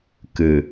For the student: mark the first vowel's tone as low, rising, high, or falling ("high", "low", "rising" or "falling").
low